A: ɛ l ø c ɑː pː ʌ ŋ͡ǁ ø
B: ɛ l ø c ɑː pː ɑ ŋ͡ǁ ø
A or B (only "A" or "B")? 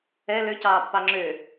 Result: B